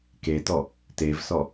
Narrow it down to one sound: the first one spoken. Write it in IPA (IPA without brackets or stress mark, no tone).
k